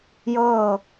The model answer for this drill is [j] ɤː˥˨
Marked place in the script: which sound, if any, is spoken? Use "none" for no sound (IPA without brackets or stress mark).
j